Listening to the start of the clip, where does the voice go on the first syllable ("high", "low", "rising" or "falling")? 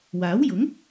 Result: rising